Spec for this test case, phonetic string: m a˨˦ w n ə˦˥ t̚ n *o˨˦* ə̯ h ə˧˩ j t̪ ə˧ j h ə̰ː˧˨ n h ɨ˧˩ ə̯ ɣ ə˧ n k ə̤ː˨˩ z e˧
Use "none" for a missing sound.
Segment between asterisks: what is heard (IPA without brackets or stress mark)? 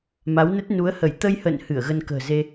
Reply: u˨˦